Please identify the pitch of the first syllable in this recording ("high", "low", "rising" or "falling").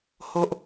high